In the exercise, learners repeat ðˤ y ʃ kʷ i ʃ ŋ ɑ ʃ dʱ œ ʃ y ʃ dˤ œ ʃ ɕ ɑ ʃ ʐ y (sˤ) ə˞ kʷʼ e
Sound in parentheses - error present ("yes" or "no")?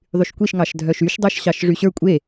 yes